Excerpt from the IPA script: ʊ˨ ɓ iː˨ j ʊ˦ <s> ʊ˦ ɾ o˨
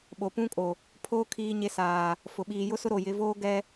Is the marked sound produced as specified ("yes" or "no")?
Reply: yes